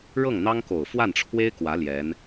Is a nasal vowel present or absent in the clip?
absent